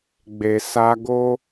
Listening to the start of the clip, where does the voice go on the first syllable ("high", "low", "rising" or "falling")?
low